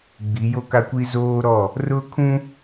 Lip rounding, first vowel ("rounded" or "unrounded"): unrounded